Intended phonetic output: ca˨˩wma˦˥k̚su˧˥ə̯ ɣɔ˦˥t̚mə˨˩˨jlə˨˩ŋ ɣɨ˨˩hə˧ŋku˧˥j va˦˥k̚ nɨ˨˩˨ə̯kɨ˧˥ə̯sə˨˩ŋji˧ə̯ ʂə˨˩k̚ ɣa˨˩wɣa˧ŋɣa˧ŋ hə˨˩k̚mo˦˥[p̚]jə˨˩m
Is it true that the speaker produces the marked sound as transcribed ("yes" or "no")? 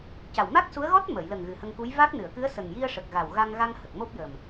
yes